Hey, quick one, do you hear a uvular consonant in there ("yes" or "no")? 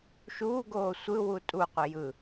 yes